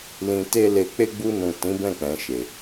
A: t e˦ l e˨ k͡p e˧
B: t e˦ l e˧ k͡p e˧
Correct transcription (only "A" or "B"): B